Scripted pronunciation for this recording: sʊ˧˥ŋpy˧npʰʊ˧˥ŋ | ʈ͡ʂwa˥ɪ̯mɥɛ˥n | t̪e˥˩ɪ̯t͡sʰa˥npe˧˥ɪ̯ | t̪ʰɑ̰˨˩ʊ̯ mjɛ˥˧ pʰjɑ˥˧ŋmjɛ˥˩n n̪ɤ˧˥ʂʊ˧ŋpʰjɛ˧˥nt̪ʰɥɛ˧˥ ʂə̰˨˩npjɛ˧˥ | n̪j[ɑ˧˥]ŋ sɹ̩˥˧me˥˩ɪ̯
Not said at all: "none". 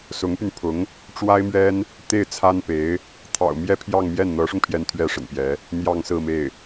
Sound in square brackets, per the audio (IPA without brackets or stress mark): ɑ˥˧